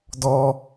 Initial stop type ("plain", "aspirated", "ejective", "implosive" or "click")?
plain